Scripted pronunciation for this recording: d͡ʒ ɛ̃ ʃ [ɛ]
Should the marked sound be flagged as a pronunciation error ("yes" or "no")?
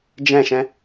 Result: yes